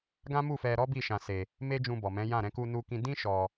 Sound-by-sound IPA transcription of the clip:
ɡ ã˦ m u˦˨ f ɛ˧ ɾ ɔ˦ b i˦˨ ʃ ã˧ s e˧ | m e˦ d͡ʒ ũ˧ b ɔ˨ m ɛ̃˨˦ j ã˦˨ ɾ ɛ̃˧ k u˧ n u˧ k ĩ˧ d ĩ˦ ʃ ɔ˧

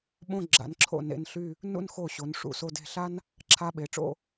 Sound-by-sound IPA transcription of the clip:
ɓ õ˥˧ ɡ͡ǁ a̰˩˧ n ǁʰ o̰˧˩ n ḛ˥˧ n ɬ y˥˧ | n ṵ˥˧ n x o˧˩ ɕ o˩˧ n ʂ ṵ˧˩ s o˧ d e̤˧˩ ɬ a˥ n | ǁʰ a˧ ɓ e˩˧ ʈ͡ʂ o̰˥˧

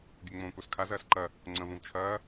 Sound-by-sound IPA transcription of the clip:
ɡʲ ɵ ŋ͡m õː k o s kʰ a z ɐː s ǃ ɐ | ŋ͡ǀ ɐ̃ v õ v t͡ʃʰ ɐː

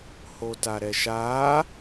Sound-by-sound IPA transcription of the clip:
h o t a ɾ ɛ ʃ a

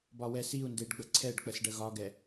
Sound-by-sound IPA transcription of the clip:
b ɒ w ɛ s i u̯ n d e ɖ ɡ͡b ə ǀʰ ɛ ɖ k͡p ə s ɖ ə ɣ ɒ ɡ ɛ

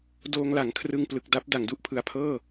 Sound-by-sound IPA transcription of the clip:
d oː˧ ŋ l a˩˦ ŋ kʰ r ɯ˧ ŋ p l ɯ˨˩ k̚ d a˦˥ p̚ d a˩˦ ŋ d u˥˩ ʔ pʰ ɯ˨˩ a̯ pʰ ɤː˥˩

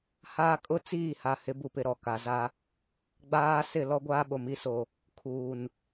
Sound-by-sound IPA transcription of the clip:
h aː˦ kʼ ʊ˦ t͡s iː˦˨ h a˨ h ɪ˨˦ b u˨ p ɪ˨ ɾ ɔ˨ k a˨ z a˦ | ɡ͡b aː˦ s ɪ˦˨ l ɔ˦ ɡʷ aː˦ ɓ o˨ m i˦ s o˨ | kʰ uː˨ n

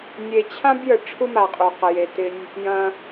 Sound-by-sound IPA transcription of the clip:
nʲ e˨ t͡ɕʰ ã˥ b j ə˨ ʈ͡ʂʰ u˥ m a˨ qʼ u˩ q ə˩ j e˨ t ɪ˦ nʲ | j ɐ̃˨

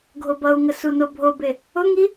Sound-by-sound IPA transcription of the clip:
ɡʱ o b ʌ u̯ ŋ ə s u n o bʱ o b e | ʊ ŋ i

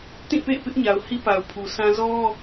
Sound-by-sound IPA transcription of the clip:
t ĩ˦˨ p ḛ˦˨ ɪ̯ p ɪ˦ ʔ ɲ a˨ ʊ̯ h i˦ p a˨ ʊ̯ pʰ u˨ s ã˦ z ɔ˦

